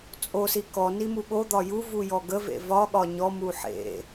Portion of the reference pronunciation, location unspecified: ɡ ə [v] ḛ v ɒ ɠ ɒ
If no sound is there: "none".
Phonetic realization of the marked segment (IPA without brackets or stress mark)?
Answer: v